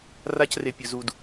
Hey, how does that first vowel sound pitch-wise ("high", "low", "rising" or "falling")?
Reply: high